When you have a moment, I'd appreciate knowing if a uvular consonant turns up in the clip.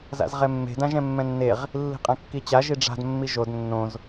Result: yes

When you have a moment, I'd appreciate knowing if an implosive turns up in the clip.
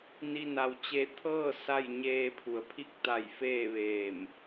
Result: no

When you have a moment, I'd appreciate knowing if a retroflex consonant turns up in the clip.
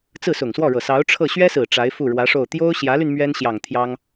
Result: yes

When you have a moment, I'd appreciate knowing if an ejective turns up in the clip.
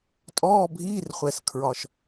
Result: yes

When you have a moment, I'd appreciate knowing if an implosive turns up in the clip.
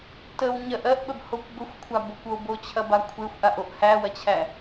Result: yes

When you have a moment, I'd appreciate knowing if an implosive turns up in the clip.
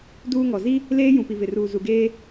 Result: no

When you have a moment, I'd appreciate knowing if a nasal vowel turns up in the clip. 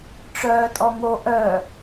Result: no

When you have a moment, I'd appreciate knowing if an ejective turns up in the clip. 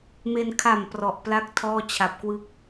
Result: no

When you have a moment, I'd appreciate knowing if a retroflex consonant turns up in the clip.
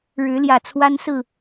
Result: yes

